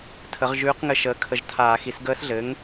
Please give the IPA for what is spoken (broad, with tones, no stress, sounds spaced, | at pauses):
tʰ ə˩˥ ʁ ʒ ʉː˧˥ q ŋ ɘ˧˥ ʃ əː˩˥ kʰ ə˧˩˧ ʒ tʰ aː˧˩˧ x i˩˥ s ɡ əː˧˥ s ɮ ɘ˩˥ ŋ